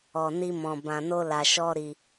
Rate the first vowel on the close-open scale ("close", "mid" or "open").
mid